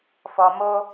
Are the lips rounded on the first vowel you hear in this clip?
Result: yes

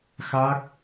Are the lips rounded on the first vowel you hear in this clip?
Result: no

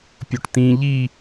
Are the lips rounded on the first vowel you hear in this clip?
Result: yes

